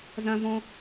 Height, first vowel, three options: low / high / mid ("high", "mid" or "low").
low